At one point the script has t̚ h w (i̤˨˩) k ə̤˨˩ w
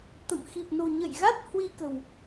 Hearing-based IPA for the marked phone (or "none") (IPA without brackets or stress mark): i˧